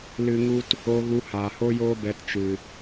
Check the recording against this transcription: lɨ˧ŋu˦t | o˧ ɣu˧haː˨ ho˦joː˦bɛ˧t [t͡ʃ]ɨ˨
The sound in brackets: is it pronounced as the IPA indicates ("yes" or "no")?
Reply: yes